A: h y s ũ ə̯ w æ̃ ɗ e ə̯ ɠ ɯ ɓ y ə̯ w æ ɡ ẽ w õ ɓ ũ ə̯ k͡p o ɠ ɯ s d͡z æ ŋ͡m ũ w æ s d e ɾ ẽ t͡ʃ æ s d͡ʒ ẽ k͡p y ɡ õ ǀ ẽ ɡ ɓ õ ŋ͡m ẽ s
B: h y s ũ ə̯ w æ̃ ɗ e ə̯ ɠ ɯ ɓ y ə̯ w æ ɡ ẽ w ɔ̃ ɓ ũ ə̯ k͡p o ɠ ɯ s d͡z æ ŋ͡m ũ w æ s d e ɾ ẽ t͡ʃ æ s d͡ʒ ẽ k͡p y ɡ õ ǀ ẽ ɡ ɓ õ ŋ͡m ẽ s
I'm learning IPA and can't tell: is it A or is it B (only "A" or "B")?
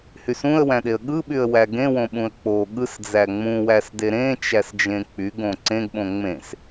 A